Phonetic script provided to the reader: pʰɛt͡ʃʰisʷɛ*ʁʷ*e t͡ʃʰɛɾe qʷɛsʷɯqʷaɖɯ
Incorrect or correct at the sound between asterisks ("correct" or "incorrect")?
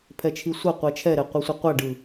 incorrect